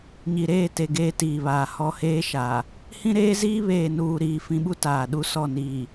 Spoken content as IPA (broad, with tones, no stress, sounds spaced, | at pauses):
ɲ i˨ ɾ eː˦˨ t e˨ ɡ eː˦ t iː˨ β aː˨ h ɔ˦ h eː˦ ʃ aː˨ | h ĩ˦ ɾ eː˦ z iː˦ β eː˨ n uː˨ ɾ iː˨ f ĩ˨ ɓ u˦ t aː˨ ɗ u˦ s ɔ˦˨ n iː˨